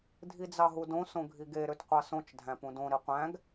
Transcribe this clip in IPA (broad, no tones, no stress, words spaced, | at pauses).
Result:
dʱid͡zɑɦudõ sõɡʱiɡe ɾøtqʷɑsõt͡ʃ dʱæ̃pũdõ ɾiqʷæ̃ɡ